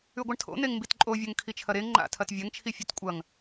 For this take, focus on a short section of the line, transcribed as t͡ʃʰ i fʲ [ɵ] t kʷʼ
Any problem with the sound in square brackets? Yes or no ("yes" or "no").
no